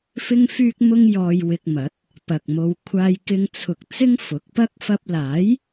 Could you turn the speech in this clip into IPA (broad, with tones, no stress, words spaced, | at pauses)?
fɪ˥ŋfyː˥k̚mʊ˥ŋ jɔː˧jwɪ˧k̚mɐ˨˥t̚ | pɐ˨k̚mo˧w kʷʰaː˧jkɪ˧ŋt͡sʰʊ˨k̚ t͡sɪ˥ŋfʊ˨˥k̚pɐ˥k̚ fɐ˥p̚ laː˨˥j